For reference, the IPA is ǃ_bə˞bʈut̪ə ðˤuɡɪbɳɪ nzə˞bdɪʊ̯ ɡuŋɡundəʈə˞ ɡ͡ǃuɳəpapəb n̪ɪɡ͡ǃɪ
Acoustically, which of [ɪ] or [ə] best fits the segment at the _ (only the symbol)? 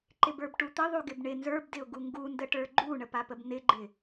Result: ɪ